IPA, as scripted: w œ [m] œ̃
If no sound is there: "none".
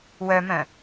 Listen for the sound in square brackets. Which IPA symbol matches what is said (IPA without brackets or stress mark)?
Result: m